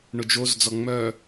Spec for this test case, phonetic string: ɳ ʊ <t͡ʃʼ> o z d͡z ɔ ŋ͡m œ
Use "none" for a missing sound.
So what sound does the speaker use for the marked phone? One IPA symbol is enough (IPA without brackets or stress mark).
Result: d͡ʒ